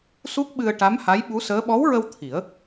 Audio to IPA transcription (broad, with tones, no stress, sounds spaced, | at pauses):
s u˦˥ k̚ ɓ ɨ˧ ə̯ ʈ a˧˥ m h a˧˥ j ɓ u˧˥ s əː˧˥ ɓ ɔ˧˥ w ɹ ə˧ w t̪ʰ i˨˩˦ ə̯